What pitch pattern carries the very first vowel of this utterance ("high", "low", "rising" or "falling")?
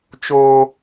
high